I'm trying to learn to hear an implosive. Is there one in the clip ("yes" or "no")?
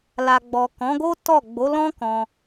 no